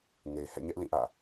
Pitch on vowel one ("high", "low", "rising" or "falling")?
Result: low